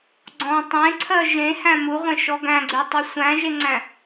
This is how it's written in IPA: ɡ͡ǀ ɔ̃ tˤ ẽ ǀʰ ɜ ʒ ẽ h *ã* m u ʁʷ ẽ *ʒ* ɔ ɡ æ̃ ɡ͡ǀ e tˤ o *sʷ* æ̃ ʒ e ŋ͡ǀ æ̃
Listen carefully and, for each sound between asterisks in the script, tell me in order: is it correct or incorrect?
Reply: incorrect, incorrect, correct

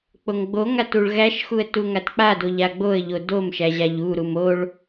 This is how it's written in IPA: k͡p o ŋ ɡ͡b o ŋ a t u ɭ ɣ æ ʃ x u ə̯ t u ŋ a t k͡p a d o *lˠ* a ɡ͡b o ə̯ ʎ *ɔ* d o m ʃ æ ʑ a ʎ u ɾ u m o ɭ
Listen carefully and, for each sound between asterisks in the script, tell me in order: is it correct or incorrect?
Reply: incorrect, incorrect

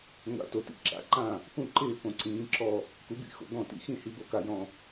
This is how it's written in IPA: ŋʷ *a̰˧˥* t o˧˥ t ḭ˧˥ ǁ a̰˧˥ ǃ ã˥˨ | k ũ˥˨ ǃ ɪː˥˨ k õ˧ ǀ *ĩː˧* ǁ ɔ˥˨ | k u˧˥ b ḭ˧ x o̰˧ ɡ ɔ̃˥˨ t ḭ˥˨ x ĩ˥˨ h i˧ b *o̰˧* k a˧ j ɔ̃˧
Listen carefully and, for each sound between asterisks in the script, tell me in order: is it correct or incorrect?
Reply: correct, incorrect, incorrect

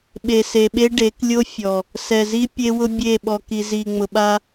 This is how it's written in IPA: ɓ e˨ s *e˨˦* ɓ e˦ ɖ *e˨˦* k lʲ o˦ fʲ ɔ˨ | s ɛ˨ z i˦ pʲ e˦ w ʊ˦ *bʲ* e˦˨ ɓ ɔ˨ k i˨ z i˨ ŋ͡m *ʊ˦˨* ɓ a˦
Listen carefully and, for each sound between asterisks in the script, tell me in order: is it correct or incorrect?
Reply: incorrect, correct, correct, incorrect

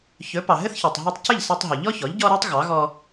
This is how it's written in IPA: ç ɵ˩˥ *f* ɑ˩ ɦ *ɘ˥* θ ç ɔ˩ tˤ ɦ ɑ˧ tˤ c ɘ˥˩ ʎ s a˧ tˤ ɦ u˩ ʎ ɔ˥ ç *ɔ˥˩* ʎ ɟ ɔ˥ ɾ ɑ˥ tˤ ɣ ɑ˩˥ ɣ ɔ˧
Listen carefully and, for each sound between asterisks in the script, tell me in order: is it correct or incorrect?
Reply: incorrect, correct, incorrect

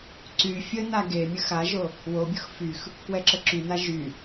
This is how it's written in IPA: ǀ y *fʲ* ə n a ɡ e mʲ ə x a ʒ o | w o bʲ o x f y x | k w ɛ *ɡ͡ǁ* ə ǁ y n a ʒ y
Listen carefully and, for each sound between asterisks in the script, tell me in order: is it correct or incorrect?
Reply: correct, incorrect

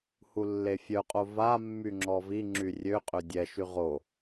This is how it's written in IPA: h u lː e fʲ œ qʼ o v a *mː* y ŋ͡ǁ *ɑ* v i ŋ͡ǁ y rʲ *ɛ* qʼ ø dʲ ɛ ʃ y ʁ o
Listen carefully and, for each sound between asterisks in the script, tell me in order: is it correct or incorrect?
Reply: correct, incorrect, incorrect

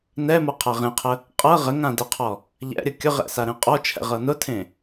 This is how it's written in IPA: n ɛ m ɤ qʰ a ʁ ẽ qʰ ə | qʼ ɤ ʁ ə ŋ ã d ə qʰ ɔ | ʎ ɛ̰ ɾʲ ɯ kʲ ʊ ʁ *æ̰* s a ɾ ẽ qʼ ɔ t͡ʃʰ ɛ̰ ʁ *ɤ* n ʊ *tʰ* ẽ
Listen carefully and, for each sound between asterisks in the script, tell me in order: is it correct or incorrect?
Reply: incorrect, correct, correct

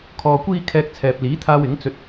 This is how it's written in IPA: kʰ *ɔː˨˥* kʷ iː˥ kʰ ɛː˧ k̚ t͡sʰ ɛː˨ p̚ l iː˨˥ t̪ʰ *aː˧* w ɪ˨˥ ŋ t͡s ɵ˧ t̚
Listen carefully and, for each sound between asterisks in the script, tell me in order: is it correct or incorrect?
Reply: incorrect, correct

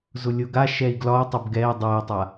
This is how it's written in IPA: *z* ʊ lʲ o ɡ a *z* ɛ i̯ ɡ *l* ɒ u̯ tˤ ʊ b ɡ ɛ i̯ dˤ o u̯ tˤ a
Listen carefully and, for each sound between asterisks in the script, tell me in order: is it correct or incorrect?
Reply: correct, incorrect, correct

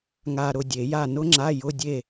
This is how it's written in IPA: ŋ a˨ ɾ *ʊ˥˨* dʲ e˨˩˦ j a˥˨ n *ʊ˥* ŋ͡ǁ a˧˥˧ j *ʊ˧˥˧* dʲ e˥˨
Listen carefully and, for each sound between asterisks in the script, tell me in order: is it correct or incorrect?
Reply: correct, correct, correct

